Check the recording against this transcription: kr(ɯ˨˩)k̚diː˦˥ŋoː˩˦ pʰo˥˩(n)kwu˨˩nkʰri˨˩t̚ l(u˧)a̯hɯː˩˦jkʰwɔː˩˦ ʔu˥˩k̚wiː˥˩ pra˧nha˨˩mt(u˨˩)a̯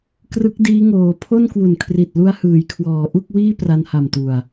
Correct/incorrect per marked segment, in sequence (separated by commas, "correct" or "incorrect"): incorrect, correct, correct, correct